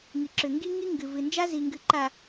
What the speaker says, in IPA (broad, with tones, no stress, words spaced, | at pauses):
ŋi˨ǁʏ˨ ŋɡi˦ŋi˦ ŋɡɨ˨ vɨ˨nd͡ʒa˦zi˨ ŋɡɨ˨ǃa˨